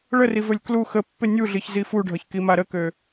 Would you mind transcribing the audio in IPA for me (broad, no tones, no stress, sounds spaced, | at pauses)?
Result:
ɭ ə r i v ɵ lʲ k l u x ə pː ɪ nʲ u ɮ i ç z i f u ɖʱ ʌ ç k i m a ɾ ə k ø